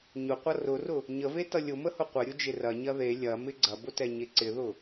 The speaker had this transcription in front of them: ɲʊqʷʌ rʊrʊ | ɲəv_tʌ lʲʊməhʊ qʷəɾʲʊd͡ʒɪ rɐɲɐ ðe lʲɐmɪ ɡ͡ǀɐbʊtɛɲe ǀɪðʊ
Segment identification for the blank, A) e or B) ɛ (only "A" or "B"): A